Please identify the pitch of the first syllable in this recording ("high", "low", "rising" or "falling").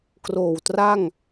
low